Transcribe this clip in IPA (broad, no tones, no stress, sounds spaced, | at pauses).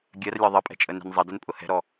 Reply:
ɡʲ ɜ r lʲ ɒ ðˤ ə pʼ ɛ̤ t͡ʃʼ ə n ɛ̤ n zˤ ʌ d ə n pʼ ʊ h ɛ̤ ɾ ɔ